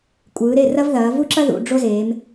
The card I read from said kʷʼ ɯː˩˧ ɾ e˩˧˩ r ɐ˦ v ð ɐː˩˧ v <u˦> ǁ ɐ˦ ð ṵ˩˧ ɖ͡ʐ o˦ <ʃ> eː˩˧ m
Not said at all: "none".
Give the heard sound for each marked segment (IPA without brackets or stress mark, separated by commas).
u˦, z